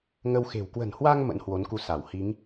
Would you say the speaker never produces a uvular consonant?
yes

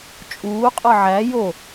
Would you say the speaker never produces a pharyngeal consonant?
no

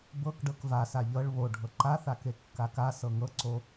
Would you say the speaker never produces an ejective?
yes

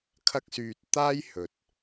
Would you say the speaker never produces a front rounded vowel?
no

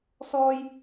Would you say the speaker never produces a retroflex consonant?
yes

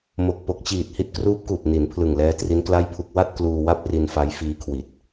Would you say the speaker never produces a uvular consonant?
yes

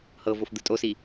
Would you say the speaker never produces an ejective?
no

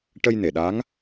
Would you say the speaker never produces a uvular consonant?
yes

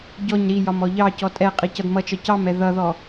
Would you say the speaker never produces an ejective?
no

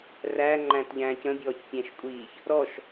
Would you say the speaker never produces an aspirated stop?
yes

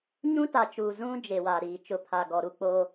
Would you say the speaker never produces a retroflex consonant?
yes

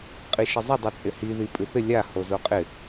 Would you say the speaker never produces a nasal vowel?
yes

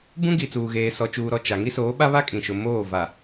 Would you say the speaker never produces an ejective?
no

